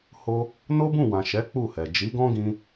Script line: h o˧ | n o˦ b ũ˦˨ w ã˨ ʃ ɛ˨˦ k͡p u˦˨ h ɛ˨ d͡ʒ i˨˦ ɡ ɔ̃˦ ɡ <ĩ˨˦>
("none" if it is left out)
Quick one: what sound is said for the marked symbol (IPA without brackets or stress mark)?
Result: ĩ˧